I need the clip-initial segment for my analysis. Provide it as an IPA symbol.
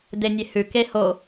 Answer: d̪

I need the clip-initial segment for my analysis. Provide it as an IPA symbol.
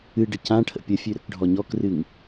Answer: ɨ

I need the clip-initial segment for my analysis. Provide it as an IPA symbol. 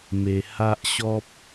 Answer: m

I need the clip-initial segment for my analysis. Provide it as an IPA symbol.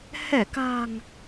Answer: h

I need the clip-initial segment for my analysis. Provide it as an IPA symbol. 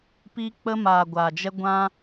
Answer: p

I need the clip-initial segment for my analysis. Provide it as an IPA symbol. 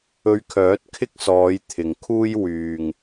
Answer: ɵ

